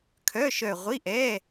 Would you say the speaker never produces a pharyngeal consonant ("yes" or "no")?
yes